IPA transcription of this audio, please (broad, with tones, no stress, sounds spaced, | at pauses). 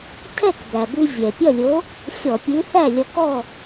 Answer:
tʰ ɛ˥˨ k b æ˩ b ʉ˧ zʲ ɛ˩ pʲ ʌ˥˨ lʲ o˨˥ | xʲ ɔ˧˩˧ pʲ ʉ˨˥ θ æ˥˨ lʲ ɔ˧ k ɔ˥˨